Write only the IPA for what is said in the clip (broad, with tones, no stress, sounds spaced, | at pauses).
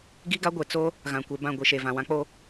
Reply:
ɡ i˦ ɡ a˦ ɡʷ e˨ t͡s o˦ | ɣ ã˨ kʷ e˨ b ã˦˨ ɡʷ i˨ ʃ e˨ v ã˨ w ã˦ k͡p o˦